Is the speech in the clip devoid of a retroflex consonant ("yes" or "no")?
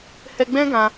yes